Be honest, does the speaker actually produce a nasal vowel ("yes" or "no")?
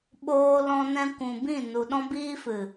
yes